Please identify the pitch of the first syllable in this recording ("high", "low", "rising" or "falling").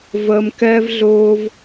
high